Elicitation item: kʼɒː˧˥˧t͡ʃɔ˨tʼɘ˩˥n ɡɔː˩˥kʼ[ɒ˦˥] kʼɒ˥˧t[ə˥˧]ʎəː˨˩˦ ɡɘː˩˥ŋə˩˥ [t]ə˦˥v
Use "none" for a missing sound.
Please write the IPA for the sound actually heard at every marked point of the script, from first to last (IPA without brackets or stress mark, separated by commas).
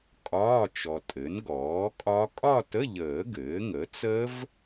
ɒ˦˥, ə˧˥˧, t͡s